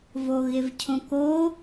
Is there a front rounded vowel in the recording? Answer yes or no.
no